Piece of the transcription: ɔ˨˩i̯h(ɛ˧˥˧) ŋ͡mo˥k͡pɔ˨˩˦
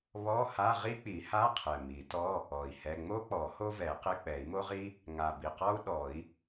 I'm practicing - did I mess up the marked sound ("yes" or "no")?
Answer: no